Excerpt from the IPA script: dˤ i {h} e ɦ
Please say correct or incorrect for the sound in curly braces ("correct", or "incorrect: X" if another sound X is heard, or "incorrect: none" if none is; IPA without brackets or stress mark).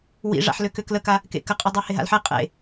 correct